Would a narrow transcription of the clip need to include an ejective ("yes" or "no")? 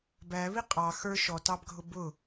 yes